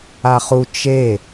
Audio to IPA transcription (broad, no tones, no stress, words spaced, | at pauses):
aχu t͡ʃe